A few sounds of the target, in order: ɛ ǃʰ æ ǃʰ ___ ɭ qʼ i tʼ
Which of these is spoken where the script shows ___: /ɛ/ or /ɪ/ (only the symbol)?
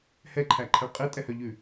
ɛ